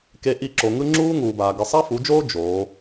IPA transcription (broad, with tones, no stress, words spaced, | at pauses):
ke˦ ʔi˦˨ ǁo˨ŋɯ˦ ŋ͡ǁuː˦ŋuː˨baː˨ ɡɯ˨sˤa˦fu˨˦d͡ʒoː˦ d͡ʒoː˨˦